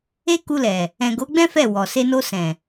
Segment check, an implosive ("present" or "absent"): absent